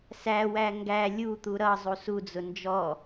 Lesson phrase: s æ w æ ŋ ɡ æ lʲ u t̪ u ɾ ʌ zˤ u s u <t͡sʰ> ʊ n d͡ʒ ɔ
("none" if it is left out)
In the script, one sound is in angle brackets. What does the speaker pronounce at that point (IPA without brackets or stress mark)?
d͡z